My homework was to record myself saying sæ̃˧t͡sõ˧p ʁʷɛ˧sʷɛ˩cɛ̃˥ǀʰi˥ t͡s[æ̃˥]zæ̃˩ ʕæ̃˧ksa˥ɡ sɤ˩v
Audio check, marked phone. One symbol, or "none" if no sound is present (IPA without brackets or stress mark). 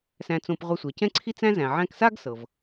æ̃˥